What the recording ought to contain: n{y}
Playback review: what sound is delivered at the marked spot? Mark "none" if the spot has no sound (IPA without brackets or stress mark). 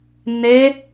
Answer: e